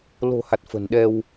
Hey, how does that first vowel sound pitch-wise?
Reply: low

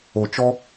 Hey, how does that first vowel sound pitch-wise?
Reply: low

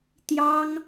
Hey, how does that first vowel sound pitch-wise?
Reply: high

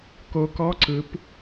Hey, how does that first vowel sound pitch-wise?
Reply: rising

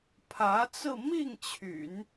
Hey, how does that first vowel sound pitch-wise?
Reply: rising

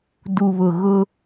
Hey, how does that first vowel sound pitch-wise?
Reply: low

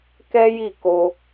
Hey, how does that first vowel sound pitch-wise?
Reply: high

